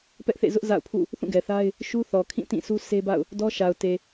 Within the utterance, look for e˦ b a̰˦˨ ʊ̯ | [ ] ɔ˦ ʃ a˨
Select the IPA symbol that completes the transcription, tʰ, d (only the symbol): d